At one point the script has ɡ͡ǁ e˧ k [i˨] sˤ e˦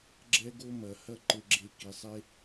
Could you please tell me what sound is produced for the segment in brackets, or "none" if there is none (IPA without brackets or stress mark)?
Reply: i˨